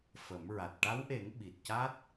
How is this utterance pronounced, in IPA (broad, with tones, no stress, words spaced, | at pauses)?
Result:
fə˨˩˦mɹa˨˩t̚ ʈa˧˥wʔe˨˩˦ŋ ɓi˨˩t̚ca˦˥t̚